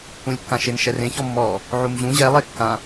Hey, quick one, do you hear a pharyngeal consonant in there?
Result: yes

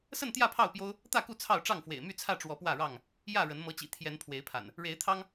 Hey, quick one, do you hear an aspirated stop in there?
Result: yes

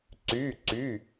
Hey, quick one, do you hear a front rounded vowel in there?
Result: yes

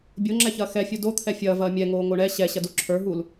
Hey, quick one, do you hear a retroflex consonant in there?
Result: yes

